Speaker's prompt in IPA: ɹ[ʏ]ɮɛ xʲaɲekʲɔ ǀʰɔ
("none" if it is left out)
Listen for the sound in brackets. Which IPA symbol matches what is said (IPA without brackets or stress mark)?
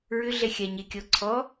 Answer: ʏ